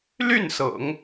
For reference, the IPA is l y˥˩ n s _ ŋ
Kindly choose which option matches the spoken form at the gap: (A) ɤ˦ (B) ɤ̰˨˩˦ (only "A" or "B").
B